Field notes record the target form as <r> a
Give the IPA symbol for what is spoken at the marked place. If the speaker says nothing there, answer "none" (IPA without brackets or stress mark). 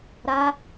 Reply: ɾ